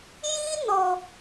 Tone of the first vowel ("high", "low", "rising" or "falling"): high